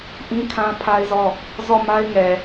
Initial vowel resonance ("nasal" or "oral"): nasal